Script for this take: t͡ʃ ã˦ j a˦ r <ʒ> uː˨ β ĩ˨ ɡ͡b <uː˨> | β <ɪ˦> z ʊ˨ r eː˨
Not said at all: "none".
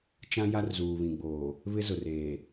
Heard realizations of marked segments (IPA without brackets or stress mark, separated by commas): z, oː˨, ɪ˦